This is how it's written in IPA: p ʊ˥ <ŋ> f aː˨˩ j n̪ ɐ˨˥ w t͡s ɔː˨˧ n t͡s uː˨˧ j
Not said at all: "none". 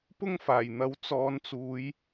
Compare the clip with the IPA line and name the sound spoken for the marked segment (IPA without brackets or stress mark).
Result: ŋ